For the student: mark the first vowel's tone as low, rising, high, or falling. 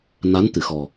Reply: rising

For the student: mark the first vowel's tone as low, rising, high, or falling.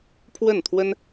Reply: falling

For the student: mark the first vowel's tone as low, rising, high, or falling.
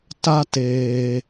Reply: high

